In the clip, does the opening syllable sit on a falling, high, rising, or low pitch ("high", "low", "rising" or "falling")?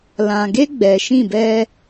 low